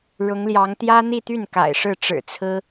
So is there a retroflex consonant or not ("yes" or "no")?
yes